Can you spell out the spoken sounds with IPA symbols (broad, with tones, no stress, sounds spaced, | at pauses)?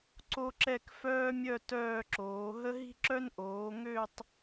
ǀ o˥ ǁ ɛ˥˧ k f œː˥ mʲ œ˥˧ t œː˥˧ ǁ oː˩˧ ɦ ə˥ ɦ i̤˥ ǁ œ˥ n ʔ oː˩˧ ŋ ø˥˧ tˤ